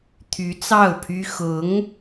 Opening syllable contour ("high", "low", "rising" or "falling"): rising